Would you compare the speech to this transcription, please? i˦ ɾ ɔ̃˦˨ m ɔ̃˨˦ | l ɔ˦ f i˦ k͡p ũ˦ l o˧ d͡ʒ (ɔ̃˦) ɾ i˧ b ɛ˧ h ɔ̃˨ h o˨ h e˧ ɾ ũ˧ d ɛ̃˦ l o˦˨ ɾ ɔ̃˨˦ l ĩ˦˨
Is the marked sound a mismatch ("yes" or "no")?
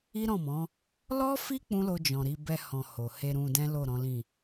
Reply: yes